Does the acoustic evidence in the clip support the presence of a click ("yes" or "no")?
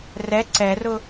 yes